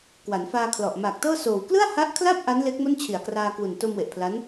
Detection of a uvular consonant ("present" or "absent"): absent